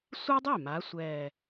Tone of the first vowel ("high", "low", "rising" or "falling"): high